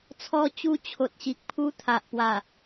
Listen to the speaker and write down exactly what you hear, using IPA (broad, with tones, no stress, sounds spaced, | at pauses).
t͡sʰ ɔ˧ t͡ɕ u˧ t͡ɕʰ o˨ t̚ ɕ i˨ k̚ pʰ u˧ t̪ʰ a˨ ʔ p w a˨˩